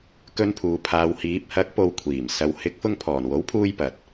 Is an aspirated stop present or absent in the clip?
present